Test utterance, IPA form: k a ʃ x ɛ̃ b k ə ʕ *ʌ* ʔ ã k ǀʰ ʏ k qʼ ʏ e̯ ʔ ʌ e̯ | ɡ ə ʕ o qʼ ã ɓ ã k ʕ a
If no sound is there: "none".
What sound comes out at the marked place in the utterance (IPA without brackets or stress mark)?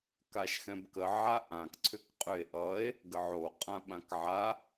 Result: a